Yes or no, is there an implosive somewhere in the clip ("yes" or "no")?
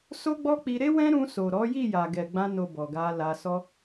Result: no